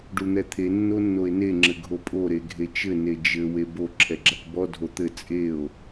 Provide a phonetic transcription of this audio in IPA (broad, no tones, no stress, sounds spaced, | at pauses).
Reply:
ɖ u n̪ ɛ t̪ʰ e nː o nː o e̯ n e ŋ͡ǁ ɘ ɡʱ o pʼ o ɾ e ɡʱ e t͡ʃ ɘ n e d͡ʒ ɘ w e b o ǁʰ ɛ ɡ͡ǁ a k b ɔ dʱ o t̪ ɘ t͡sʼ e o̯